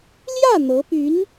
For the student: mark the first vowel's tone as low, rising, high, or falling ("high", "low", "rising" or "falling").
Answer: falling